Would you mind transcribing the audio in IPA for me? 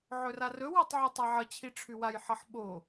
ʕ ɵ r a r ɵ w ɑ tˤ ʕ ɵ tˤ a ʕ ʌ t͡ɕʰ i ʈ͡ʂʰ ʉ w a j ħ ʌ ħ ɓ o

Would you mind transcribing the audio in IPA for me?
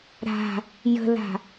ɾ a̤ | j ə̤ l a̤

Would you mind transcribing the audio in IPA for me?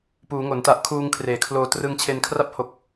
p uː˩˦ ŋ o˩˦ n t a˦˥ ʔ kʰ uː˧ ŋ kʰ r eː˩˦ kʰ l oː˧ t r ɯ˧ ŋ t͡ɕʰ e˧ n kʰ r a˦˥ p̚ h o˨˩ k̚

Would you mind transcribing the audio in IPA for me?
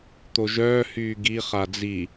t̪ o ʒ œː h yː ɡ i χ a d͡z i

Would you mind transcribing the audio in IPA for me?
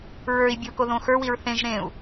ɹ ə˞ i̯ bʲ u k o ð õ x ə˞ w i ɹ θ ẽ ʒ ɾ ẽ u̯

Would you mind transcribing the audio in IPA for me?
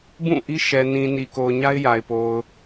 b ũ˦˨ ʔ i˦ ʃ ɛ˨ n ĩ˨ n i˨ k o˨ ʊ̯ ɲ a˦ ɪ̯ j a˨ ɪ̯ p o˨ ʊ̯

